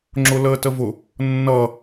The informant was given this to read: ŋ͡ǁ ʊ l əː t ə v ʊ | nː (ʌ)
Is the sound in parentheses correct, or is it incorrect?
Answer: correct